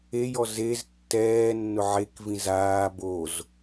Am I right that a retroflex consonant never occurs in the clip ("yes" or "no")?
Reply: yes